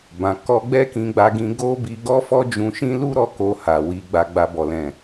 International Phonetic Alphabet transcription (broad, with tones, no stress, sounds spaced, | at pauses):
b ã˨ k ɔ˧ ɡ͡b ɛ˦ k ĩ˧ ɡ͡b a˧ ɡ ĩ˧ ɡ o˦ b i˧ ɡ ɔ˦ f ɔ˦ d͡ʒ ũ˧ ʃ ĩ˦ l u˦ ɾ ɔ˧ k o˧ h a˨ w i˧ ɡ͡b a˧ ɡ͡b a˧ b ɔ˨ l ɛ̃˨